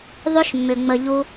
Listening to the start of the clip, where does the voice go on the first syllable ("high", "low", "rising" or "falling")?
high